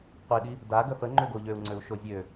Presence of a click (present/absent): present